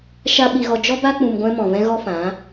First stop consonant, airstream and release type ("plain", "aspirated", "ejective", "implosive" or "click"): implosive